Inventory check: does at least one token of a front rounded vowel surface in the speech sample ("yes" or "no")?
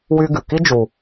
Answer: yes